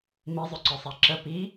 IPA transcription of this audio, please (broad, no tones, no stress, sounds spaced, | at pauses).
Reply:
m i zˤ ɵ ǀ œ sˤ a ǁ ə p i